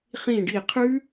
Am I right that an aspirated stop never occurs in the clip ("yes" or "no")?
no